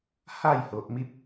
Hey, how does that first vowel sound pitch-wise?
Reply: falling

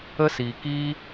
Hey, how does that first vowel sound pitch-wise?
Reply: high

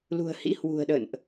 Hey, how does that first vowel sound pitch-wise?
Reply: low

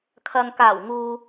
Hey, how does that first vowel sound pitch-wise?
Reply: low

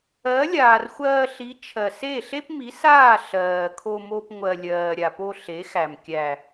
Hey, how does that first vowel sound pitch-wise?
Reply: rising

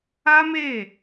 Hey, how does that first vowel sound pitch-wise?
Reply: high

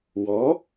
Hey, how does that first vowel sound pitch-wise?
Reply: rising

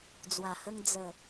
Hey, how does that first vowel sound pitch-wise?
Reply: low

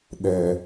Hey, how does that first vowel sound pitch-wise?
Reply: low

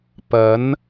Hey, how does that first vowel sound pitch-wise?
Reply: rising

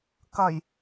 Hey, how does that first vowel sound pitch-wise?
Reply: low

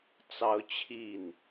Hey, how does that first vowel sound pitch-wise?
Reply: high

